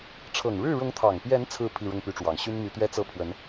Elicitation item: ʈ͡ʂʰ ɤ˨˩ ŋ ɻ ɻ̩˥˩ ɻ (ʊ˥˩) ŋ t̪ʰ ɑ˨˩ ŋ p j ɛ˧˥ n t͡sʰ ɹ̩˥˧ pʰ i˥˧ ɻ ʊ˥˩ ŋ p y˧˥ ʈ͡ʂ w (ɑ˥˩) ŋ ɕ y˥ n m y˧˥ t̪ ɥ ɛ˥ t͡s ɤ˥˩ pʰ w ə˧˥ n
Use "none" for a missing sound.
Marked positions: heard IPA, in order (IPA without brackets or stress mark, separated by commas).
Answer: ʊ˧˥, ɑ˨˩